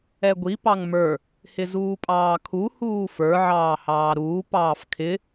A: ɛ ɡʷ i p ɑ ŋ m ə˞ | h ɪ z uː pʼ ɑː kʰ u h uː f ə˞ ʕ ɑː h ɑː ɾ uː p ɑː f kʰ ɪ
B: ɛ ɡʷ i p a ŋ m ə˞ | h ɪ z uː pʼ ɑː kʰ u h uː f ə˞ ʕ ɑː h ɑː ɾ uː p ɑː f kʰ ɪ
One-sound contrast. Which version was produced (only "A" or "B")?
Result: A